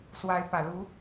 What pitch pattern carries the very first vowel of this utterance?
rising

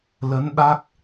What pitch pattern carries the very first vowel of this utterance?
rising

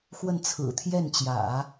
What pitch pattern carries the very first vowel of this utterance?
falling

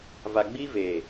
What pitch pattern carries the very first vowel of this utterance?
low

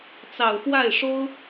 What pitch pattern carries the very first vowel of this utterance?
low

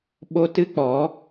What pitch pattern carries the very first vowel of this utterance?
high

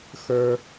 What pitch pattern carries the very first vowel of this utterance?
high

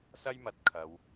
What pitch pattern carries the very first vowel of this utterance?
high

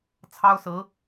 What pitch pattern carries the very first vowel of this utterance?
high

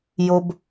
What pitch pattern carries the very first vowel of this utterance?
high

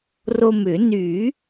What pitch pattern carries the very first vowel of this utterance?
low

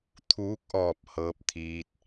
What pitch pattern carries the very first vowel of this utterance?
rising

